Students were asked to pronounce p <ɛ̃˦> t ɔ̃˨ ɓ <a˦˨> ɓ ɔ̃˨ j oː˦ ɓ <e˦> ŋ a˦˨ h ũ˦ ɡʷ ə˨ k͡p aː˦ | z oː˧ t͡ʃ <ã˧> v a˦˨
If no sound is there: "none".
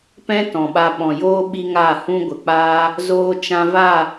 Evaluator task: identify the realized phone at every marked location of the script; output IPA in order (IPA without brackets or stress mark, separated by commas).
ɛ̃˦, a˧, i˦, ã˧